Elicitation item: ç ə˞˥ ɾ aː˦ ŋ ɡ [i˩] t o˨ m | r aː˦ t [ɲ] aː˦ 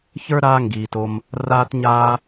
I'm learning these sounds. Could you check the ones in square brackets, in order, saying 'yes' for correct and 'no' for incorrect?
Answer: no, yes

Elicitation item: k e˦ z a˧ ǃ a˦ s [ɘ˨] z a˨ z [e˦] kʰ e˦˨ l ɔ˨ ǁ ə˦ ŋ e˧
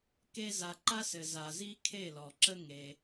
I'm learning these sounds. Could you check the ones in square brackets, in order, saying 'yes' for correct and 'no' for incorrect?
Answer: yes, no

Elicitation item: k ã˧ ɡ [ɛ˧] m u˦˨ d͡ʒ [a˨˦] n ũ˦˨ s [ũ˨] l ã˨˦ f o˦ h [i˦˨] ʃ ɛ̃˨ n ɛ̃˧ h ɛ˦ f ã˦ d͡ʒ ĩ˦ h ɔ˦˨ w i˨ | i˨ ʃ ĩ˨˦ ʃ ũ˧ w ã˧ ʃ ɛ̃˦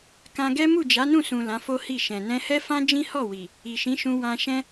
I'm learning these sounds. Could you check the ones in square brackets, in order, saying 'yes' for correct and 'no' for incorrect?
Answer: no, yes, yes, yes

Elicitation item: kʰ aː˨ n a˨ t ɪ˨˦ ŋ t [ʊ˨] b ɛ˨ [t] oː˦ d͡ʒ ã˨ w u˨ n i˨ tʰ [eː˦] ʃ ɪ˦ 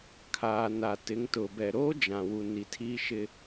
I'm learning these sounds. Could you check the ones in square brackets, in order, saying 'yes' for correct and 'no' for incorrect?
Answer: yes, no, no

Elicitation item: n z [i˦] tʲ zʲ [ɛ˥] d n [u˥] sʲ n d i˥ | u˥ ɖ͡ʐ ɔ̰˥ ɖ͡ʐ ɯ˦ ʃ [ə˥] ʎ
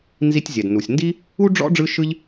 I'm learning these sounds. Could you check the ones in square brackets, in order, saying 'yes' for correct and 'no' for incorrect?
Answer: yes, no, no, no

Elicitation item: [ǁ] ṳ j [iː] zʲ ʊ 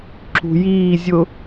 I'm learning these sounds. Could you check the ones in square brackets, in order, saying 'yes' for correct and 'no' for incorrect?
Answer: yes, yes

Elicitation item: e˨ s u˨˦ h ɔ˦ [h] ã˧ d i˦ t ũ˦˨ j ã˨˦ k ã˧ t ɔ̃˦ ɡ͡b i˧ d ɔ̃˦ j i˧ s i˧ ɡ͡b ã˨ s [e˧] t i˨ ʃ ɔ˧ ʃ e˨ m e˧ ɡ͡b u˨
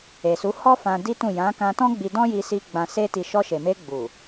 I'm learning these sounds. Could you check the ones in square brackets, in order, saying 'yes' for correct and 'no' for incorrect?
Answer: no, yes

